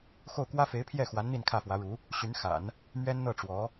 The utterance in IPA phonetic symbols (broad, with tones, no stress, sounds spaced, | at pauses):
x o˥˩ ʊ̯ k w ä˥ f e˧˥ ɪ̯ pʰ j ɛ˥˩ x w a˧˥ n n̪ i˥˧ n kʰ ä˥˩ f w ä˧˥ ɻ u˧˥ | ɕ y˧˥ n x a̰˨˩˦ n | m ɥ ɛ˥ n n̪ ɤ˥˩ ʈ͡ʂ w ɔ˧˥